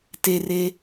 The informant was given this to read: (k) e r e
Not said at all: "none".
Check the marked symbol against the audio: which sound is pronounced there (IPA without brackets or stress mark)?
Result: t